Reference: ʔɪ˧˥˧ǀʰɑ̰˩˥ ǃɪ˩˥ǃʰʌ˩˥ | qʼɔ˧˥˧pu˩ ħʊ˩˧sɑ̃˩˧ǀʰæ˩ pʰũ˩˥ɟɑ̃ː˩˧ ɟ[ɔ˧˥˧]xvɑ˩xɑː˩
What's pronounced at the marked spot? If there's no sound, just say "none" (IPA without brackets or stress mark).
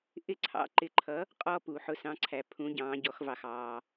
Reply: ɔ˩˧